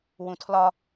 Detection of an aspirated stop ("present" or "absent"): present